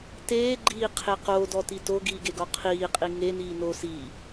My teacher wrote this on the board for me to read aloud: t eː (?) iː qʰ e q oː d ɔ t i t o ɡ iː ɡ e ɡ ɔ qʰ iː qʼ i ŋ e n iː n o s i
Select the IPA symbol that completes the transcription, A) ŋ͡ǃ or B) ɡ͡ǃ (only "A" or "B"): B